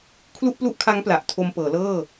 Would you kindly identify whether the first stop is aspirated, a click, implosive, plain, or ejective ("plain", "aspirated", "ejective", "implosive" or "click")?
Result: aspirated